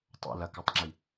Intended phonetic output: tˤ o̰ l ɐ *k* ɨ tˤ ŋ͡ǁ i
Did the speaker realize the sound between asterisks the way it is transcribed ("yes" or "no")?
yes